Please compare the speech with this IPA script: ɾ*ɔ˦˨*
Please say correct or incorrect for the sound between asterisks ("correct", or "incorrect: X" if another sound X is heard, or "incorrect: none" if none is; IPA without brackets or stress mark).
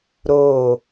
incorrect: o˦˨